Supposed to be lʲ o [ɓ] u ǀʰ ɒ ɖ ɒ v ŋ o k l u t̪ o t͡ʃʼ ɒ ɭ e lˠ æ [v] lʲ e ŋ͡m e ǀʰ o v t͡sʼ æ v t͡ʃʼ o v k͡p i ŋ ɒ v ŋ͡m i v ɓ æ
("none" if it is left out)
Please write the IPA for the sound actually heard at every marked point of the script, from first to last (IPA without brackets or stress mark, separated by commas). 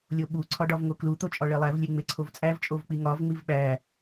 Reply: ɓ, v